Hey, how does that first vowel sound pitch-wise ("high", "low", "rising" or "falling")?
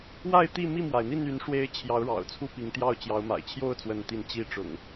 falling